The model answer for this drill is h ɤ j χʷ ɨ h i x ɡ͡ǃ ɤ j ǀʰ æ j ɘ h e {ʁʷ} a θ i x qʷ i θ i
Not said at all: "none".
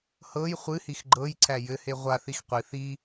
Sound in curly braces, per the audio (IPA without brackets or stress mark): ʁʷ